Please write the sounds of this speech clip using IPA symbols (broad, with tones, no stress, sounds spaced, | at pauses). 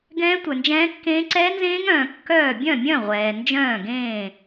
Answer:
ɡ ɛ̃ː˦˥ tʷ œ˨ n d͡ʒ ɛ̃ː˦˥ kː ẽː˦˥ ǀ ɛ˦˥ n z ẽː˦˥ ŋ œ̃ː˨ kː œː˥˨ bʲ œ̃˥˨ mʲ œ̃˥˨ ʁʷ ɛː˨ n d͡ʒ œ̃ː˥˨ ɡ ẽː˥˨